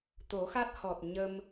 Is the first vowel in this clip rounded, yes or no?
yes